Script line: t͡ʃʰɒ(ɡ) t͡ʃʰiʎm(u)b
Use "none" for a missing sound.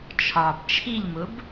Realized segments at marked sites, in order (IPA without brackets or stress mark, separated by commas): b, ʊ